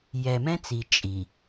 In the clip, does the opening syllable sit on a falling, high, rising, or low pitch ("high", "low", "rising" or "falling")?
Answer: low